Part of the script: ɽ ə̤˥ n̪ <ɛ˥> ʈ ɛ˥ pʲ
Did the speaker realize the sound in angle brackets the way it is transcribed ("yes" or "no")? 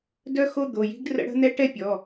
yes